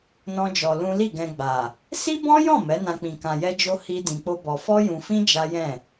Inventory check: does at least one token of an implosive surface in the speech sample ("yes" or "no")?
no